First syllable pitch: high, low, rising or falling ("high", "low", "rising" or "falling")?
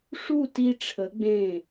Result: falling